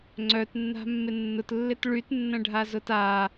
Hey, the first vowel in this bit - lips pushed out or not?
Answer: yes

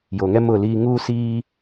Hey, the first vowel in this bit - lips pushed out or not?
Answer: yes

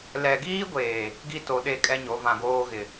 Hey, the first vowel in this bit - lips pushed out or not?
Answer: no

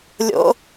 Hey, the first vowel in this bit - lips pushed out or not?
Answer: yes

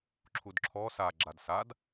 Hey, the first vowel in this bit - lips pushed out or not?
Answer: yes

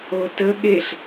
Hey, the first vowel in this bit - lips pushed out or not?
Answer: yes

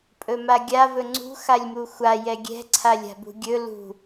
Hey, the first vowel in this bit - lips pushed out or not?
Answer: yes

